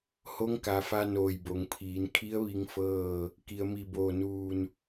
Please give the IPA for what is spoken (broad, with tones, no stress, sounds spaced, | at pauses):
h o˧˥ ŋ k a˩˧ f a˧ n oː˧˩ j b o˩˧ ŋ pʰ iː˩˧ n kʰ i˧˥ ə̯ ʋ i˧˥ ŋ f ɤː˥˨ | k i˩ ə̯ m i˧˩ b oː˧˩ n uː˧˩ n